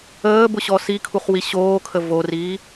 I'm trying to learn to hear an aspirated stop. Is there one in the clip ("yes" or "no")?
yes